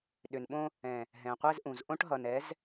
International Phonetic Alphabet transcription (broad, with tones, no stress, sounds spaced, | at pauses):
ɗ ʏ˨ n ɓ õ˦ | ɛ̃˨ | ɦ ɛ̃˨ qʷ ɛ˦ z ʔ ũ˨ z ʔ õ˦ ʈ ɦ ʌ˨ n ɛ˨˦ z